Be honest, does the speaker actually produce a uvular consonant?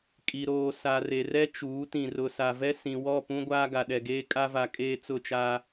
no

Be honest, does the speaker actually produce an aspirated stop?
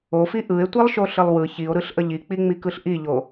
no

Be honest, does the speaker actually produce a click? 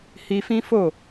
no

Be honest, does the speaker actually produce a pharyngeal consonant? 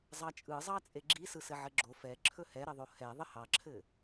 yes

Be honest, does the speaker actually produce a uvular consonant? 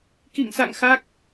no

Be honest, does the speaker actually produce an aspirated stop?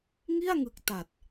no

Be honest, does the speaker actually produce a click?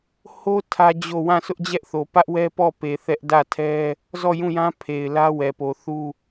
no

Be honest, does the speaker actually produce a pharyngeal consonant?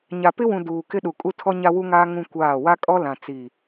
no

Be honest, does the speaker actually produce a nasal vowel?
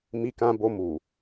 yes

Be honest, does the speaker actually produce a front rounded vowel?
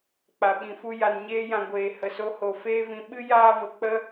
no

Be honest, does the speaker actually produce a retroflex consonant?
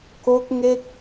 no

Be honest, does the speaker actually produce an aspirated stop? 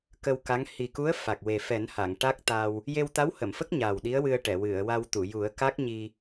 no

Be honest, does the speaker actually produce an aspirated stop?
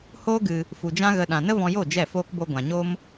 no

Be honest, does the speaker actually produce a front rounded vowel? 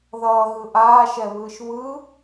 no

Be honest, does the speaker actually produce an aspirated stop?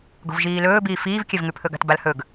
yes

